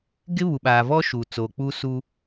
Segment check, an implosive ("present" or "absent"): present